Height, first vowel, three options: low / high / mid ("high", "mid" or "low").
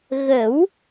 mid